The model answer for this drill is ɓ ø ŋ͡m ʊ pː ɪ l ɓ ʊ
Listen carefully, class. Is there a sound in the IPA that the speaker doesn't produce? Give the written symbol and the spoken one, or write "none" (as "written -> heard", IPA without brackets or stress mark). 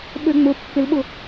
none